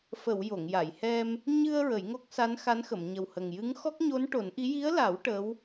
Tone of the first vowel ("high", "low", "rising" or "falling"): low